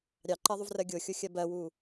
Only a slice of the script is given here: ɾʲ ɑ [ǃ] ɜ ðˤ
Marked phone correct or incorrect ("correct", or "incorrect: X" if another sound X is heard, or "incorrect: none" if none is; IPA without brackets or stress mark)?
correct